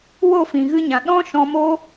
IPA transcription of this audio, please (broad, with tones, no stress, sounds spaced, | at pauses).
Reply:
w o˦˨ f ĩ˨ ɣ ɨ˧ ɲ ã˨ ɗ ɔ̃˦ ʃ ɔ̃˧ m o˦